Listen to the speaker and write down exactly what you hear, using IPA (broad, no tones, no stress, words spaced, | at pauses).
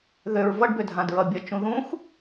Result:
ðøɹ vʌɖbødʱãdɹʌ bʲʌt͡ʃũ ðũx